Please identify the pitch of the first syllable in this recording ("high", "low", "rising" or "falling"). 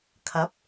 rising